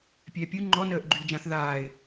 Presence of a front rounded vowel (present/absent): present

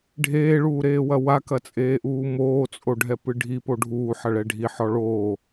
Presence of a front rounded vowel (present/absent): absent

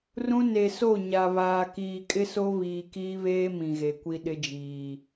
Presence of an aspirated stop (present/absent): absent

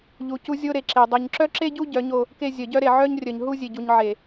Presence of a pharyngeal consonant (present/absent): present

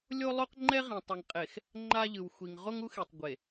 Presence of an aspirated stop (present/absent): absent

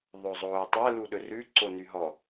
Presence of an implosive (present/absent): present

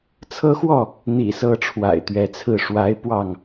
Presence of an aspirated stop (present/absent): present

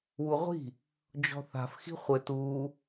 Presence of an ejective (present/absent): absent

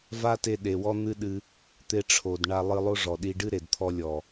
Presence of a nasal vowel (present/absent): absent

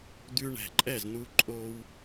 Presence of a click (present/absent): present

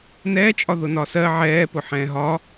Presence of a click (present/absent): absent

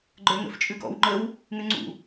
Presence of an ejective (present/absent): present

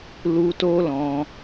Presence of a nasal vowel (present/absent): present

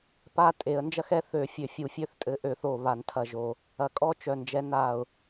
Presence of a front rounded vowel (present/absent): present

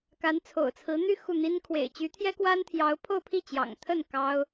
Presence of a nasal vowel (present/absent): absent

